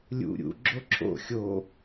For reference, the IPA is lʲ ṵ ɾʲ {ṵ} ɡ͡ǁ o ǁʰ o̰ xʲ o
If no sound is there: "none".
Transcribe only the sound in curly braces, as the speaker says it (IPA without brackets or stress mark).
ṵ